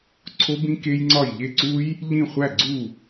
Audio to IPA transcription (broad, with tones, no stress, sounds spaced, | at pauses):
ǀʰ o˦˥ b ĩ˦˥ k e˦˥ j ŋ͡ǀ ɒ˥˩ j ʎ e˥˩ ǀ u˦˥ j | ʎ ĩ˥˩ χʷ æ˥˩ ɡ͡ǀ u˥˩